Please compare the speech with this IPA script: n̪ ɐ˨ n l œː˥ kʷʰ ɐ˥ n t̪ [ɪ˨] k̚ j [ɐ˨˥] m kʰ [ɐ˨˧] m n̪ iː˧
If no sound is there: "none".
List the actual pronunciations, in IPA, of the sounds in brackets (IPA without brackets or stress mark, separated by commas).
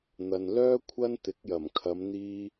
ɪ˨˥, ɐ˨˩, ɐ˨˧